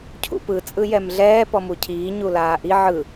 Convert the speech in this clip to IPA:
cʰṵpɯ t͡sʼɯjɛmɮɛː pɔmucʰiː ɲulaːʔi ʕɯ

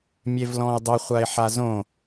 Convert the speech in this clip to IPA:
mʲevlɔ̃ɪ̯dˤɵ χʷaɪ̯ħazõ

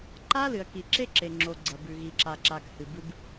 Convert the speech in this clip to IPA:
ǃa˦lɨ˨ɐ̯ki˨ ǁe˦ǁe˨ŋ͡ǁo˨ ɡ͡ǀɐ˨bʉ˨ ɣi˨ǁa˨ǁa˨k hɨ˨ bɨ˦b

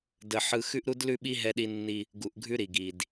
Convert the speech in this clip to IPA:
də˨ ħɯ˦ xʉ˦ʔɾu˦dlʉ˦ɓi˦ ɦɛ˦ɗi˦nːi˦ | ɡu˨ʔɡʱʉ˦ɾi˨ɡi˨d

